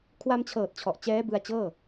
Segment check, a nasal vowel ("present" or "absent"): absent